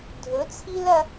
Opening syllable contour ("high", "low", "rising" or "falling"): rising